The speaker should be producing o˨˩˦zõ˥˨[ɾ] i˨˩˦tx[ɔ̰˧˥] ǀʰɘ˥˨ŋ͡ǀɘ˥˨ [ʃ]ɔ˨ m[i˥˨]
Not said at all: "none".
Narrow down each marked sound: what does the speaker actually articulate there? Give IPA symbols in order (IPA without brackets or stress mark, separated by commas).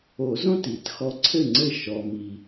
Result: t, ɔ˧˥, ʃ, i˨